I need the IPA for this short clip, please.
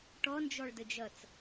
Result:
ʈ ɔ n d͡ʒ ɔ ɭ d ə d͡ʒ ʌ t͡s

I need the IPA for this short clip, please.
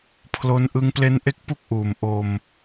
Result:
pʰ l o˦˥ n ʔ ɯ˧ ŋ p l e˦˥ n ʔ e˦˥ k̚ p u˦˥ k̚ ʔ uː˨˩ m ʔ o˧ m

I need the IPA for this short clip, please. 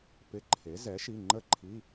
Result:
p ɪ˧˥˧ ǃʰ e˩˥ z ɛ˩˥ ʃ i˩˧˩ ŋ͡ǃ ə˥˨ ǃʰ i˧˥˧

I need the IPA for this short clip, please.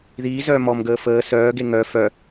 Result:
ð iː z œː m ɔ m ɡ əː f əː s œː ɡ e ŋ œ f œ

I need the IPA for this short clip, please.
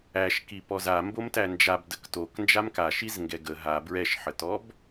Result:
æ ʃ k i p ɔ z a m b o m t æ n d͡ʒ a b d ə k t o k n d͡ʒ a m k a ʃ i z ŋ ɡ ɛ ɡ ə ɦ a b ɹ ɛ ʃ ħ ə t ɔ b

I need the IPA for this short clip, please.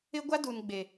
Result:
ɪ˦ ɡʷ a˦ d u˨ n ɡ͡b e˨

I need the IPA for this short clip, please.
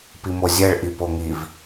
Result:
p i m o zʲ ɛ ɭ ʔ i p o ŋ i v

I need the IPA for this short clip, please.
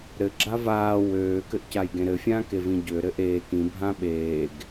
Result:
ɾ ɘ ɡ͡ǁ a v aː w øː k ɘ ʔ c a j ɡ ẽ ɾ ɘ fʲ ãː k e v ĩ ɟ ø ɾ ɘ ʔ eː k ĩ bʱ ã ɓ eː ɡ

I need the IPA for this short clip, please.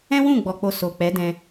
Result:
ɛ̃˦ w ũ˦˨ ɡ͡b ɔ˨ k͡p o˨ s o˨ k͡p ɛ˨˦ d ɛ̃˧

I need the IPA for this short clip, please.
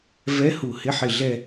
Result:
v ɛ˧˥ h u˨˩ h ɪ˧˥ ħ ɪ˨˩ ɮ ɛ˦˨

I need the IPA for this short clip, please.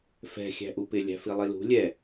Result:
f ɛ̤ xʲ æ̤ ʔ u p ɪ lʲ æ̤ f i lˠ i l ṳ lʲ ɛ

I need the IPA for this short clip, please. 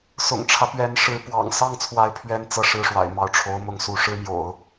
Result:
s ʊ̰˨˩ ŋ ʈ͡ʂʰ ä˦ p ɥ ɛ˧˥ n ʂ ɻ̩˧˥ p w ɑ̰˨˩ ŋ s ɑ˥˩ ŋ t͡sʰ w a˧˥ ɪ̯ pʰ ɥ ɛ˥˧ n t͡s ɤ˥˧ ʂ ɻ̩˥˩ ʂ w a̰˨˩ ɪ̯ m ɑ˥˩ ʊ̯ ʈ͡ʂʰ o˧˥ ʊ̯ m ʊ˥˧ ŋ s u˥˩ ʂ ɻ̩˥ m j o̰˨˩˦ ʊ̯

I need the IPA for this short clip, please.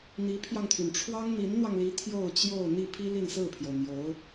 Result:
n̪ i˧˥ pʰ j ɑ˧ ŋ t̪ʰ y˩ n ʈ͡ʂʰ w ɑ˥ ŋ n̪ i˧˥ n n̪ w ɑ˧ ŋ l i˧˥ t̪ʰ j o˥˧ ʊ̯ t͡ɕ j o˥˧ ʊ̯ n̪ i˥˩ pʰ i˥ l i˥˧ n s ɹ̩˥˩ pʰ j o˩ ʊ̯ n̪ j o˧˥ ʊ̯

